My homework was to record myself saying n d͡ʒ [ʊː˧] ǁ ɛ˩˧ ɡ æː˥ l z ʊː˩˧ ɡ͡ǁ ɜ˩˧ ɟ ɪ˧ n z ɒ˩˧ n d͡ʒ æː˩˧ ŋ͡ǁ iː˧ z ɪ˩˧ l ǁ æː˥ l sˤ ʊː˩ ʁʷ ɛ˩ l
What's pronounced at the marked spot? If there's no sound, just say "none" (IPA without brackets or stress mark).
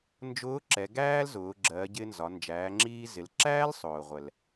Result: ʊː˧˥